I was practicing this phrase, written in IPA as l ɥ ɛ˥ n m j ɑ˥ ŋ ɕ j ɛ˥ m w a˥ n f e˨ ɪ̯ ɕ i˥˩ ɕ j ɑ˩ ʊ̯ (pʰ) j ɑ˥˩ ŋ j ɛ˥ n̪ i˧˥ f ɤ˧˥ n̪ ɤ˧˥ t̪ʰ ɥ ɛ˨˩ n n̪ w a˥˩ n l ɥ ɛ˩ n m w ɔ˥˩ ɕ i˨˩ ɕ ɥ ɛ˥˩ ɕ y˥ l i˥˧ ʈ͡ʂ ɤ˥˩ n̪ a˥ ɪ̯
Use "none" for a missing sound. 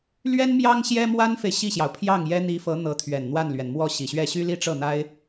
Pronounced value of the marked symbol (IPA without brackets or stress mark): pʰ